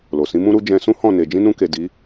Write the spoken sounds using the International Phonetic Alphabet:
l o˨ s ĩ˨˦ m ũ˦ ɾ u˦ d͡ʒ ɛ̃˧ s ũ˦ h ɔ̃˦˨ n e˨ d͡ʒ ĩ˧ n ũ˧ k e˨ d i˨˦

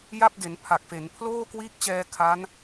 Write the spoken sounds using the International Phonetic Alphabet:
j a˥˩ p̚ d e˩˦ n pʰ a˨˩ k̚ f e˩˦ n pʰ l oː˥˩ k w iː˦˥ k̚ t͡ɕ ɛː˧ kʰ a˦˥ n

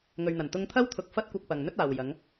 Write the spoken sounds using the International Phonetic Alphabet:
ŋ ɵ˨ ɥ n̪ ɐ˨˩ n t̪ ʊ˧ ŋ t̪ʰ ɐ˥ w t̪ʰ ʊ˨ k̚ f ɐ˥ t̚ kʷ ɐ˧ k̚ p ɐ˨ ŋ n̪ ɵ˥ t̚ aː˨ w j ɐ˨˧ ŋ

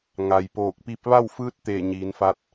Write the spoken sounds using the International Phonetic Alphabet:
ŋ a˩ j p oː˧˩ k̚ p i˧˥ p̚ ʋ a˥˨ w f ɯː˧˥ t̚ t̪ eː˧˩ ɲ iː˩˧ n f a˧ t̚

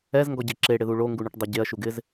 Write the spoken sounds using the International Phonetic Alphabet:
ɛ z ŋ ɡ ɔ ɟ e ǁ e ɽ ɪ ð u ɭ o ŋ ɡ u ɳ ʊ ʈ dˤ e ɟ e ɐ̯ ʃ u ɡ ɪ z

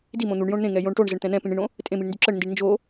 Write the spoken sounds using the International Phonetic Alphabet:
d i m õ n̪ u ɳ j õ ɳ n̪ ẽ ŋ ɛ j õ ɳ ʈ o ɳ z ə ɳ t̪ ɛ̃ n̪ ɛ̃ p ĩ ɳ ĩ ɳ õ | tʼ ẽ m i ɳ n d y ǁ ə ɳ n d i ɳ n d͡ʒ o

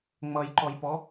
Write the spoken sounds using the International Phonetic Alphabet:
ŋ͡m ʌ j ǃ ɔ j p ɔ

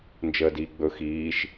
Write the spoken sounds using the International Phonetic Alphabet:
n d͡ʒ əː d iː ɡ͡b ɵ x iː ʃ

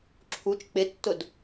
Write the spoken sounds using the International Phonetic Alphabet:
ǁʰ u t͡ʃ k͡p ɪ tː ʊ d

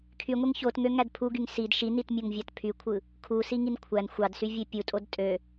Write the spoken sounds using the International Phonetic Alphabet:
kʰ y ŋʷ e ŋ ç o t ŋ ø ŋ æ d pʰ u ɡ y ŋ s i d ʃ i n i t mʲ o ŋ vʲ ɑ t pʰ y kʷʰ ɯ | kʰ u s i ŋ i n kʷʰ æ n xʷ ɑ d s y vʲ e pʲ u tʼ o d tʼ ø

